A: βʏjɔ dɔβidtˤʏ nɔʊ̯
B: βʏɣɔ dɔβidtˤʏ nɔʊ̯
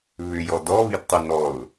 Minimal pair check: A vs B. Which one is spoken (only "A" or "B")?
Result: A